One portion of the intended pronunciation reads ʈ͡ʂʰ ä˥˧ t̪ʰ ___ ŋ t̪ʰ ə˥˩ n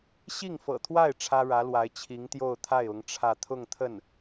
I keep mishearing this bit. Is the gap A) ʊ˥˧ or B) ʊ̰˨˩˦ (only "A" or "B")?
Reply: A